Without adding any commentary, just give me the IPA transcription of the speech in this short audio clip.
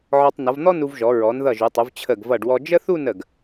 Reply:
ʕ ɔ˧ tˤ n ʌ˩˧ v n̪ ɔ˥ n u˧ v ʒ ɔ˩˧ ɹ ɔ˩˧ n ð ʌ˧˩ ʒ u˩˧ tˤ u˩˧ v t͡ɕʰ ə˧˩ ɡ v ʌ˧˩ ɖ w ɔ˧ d͡ʒ ə˥ θ u˥˧ n ə˧˩ ɡ

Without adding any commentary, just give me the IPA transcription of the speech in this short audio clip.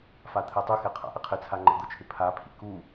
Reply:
f a t̪ʰ ɛ tˤ ʊ x e qʰ a̰ ʔ ɪ qʰ ɪ t͡sʰ a ŋ͡ǃ ɛ̰ d̪ ʊ t͡ʃʰ ɪ pʰ a pʰ ḭ k u

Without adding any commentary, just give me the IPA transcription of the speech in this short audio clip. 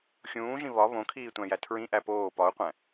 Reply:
xʲ ũː ʒ ĩ β ɒ β õ kʰ iː tʷ æ̃ j æ tʰ ɹ ĩ ʔ æ p oː p ɒ u̯ qʷ æ̃

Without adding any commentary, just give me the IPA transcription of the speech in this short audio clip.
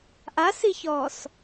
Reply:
ʔ a s i ç ɔː s

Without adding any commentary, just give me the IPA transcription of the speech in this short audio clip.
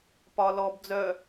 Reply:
p ɒ l ɔ b d͡z œ

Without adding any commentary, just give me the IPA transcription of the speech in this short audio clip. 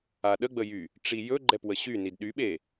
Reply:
a ɗ ə ɡ͡b ə j y | ʈ͡ʂ i j ɵ ɡ͡ǃ ɛ p w ə ɕ y n i d ɗ y ɓ e

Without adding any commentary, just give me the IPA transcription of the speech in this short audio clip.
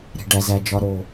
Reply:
ɾ e̤˨ ɖ æ˨ z æ˨ d͡ʒ ɒ˨ ɾ o˨

